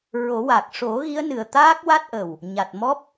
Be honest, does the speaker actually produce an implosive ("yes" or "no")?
no